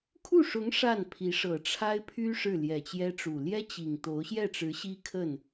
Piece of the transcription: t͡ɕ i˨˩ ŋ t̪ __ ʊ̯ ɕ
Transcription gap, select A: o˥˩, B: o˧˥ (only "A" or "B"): B